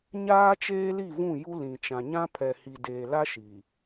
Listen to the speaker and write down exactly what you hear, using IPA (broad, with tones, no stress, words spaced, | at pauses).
ɲaː˦t͡ʃeː˦li˦˨ vũ˦˨ju˦ lĩ˨ t͡ʃã˨ɲã˦pʰɛ˨ hi˨deː˨la˦ ʃi˨